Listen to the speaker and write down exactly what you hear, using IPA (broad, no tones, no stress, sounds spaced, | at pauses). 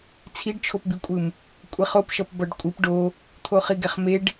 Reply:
t͡sʰ i ɖ t͡ʃʰ o p b i kʷʼ ɯ m | kʷʼ e χ o p ʃ ʌ p b ʌ ɖ kʷʼ i p ɖ o | t̪ʰ o χ i ɡ ɛ χ m e ɖ